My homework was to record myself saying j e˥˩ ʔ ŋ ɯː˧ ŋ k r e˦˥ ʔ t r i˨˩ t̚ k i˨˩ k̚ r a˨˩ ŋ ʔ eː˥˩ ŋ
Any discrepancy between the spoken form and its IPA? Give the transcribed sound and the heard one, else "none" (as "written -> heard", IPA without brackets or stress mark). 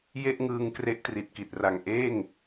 k̚ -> t̚